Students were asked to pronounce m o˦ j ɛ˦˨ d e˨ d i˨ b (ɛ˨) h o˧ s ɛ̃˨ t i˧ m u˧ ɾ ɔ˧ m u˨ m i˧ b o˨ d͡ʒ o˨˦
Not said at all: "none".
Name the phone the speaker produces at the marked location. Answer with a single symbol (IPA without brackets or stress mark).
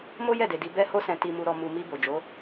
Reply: ɛ˧